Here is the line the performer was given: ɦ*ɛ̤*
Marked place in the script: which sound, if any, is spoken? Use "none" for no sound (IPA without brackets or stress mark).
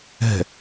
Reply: ɛ̤